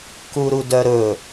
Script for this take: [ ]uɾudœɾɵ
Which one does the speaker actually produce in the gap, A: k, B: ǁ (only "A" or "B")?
A